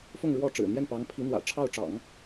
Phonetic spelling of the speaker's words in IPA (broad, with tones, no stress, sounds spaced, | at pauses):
f ʊ˥˧ ŋ ɻ w ɔ˥˩ ʈ͡ʂ ɻ̩˨˩ n̪ j ɛ˥˩ n p ɑ˧˥ ŋ pʰ i˧˥ n̪ w ä̰˨˩ ʈ͡ʂʰ ɑ˥˩ ʊ̯ ʈ͡ʂ ɑ̰˨˩˦ ŋ